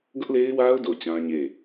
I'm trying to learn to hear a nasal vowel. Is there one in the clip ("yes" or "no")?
yes